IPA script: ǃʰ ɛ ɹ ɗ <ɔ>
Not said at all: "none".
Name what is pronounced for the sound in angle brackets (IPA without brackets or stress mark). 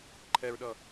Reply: ʌ